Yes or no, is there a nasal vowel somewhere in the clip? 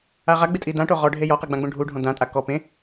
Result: yes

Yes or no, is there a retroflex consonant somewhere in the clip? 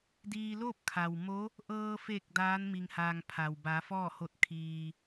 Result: no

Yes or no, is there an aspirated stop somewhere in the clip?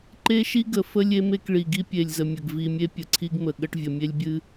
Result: yes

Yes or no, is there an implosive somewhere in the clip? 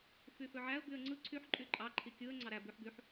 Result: no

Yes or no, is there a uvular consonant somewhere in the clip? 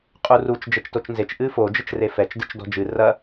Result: yes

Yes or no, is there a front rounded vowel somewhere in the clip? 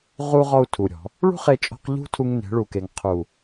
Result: no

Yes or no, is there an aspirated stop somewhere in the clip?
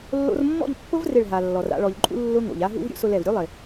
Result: no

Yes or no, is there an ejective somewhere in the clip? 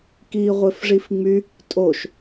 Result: yes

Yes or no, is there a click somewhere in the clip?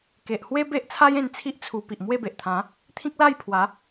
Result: no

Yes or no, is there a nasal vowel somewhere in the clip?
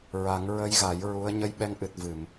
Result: no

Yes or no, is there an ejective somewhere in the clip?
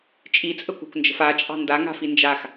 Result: yes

